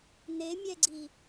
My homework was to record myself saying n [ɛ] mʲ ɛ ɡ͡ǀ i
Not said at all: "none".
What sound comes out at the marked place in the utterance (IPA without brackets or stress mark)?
e